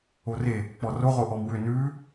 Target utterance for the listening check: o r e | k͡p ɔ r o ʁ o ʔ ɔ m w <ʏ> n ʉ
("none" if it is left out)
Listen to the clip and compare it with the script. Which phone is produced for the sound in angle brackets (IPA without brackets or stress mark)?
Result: ʏ